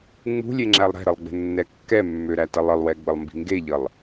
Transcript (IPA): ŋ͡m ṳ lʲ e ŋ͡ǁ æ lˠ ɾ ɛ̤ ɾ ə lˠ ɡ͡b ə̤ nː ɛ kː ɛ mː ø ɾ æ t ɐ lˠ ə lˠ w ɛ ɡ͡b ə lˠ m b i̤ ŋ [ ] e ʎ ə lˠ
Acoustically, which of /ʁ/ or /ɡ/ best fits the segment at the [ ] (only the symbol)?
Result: ɡ